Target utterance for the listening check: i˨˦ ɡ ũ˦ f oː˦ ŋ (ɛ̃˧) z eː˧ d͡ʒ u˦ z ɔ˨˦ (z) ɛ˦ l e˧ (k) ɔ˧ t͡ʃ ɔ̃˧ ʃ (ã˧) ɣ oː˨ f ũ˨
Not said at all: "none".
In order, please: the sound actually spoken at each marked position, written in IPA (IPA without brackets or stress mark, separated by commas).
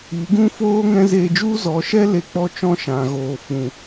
ɛ̃˦, ʃ, k͡p, ã˨